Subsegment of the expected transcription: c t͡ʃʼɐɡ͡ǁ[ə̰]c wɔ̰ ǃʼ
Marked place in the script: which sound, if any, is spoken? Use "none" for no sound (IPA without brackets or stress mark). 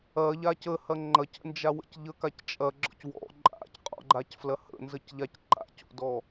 ɔ̰